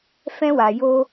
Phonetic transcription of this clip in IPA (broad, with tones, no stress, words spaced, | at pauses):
fɛ̃˦wa˧ jo˦